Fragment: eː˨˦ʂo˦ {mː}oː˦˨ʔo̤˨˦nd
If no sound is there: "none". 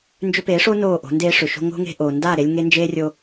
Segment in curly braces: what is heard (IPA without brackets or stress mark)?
n